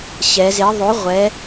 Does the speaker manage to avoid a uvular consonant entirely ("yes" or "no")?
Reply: no